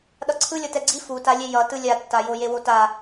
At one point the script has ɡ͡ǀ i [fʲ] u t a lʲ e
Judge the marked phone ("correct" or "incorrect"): incorrect